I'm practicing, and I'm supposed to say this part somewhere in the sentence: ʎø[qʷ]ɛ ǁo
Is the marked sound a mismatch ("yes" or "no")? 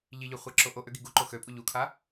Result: yes